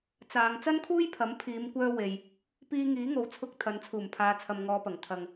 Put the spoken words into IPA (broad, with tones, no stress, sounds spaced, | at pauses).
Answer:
t͡s aː˨˧ ŋ t͡s ɐ˥ n kʰ uː˥ j pʰ ɐ˨˥ m pʰ iː˨˧ m kʷ œː˧ w e˨ j | p iː˧ ŋ iː˨˥ ŋ o˨ w t͡sʰ ʊ˧ k̚ t̪ʰ ɐ˨˧ n t͡sʰ uː˨˩ m pʰ aː˨˧ t͡sʰ ɐ˨ m ŋ ɔː˨˧ p ɐ˨˩ ŋ t̪ʰ ɐ˨ ŋ